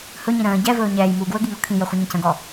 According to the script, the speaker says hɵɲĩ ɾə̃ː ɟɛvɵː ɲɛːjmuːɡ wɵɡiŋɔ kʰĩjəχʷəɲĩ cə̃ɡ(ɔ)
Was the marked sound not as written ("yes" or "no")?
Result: no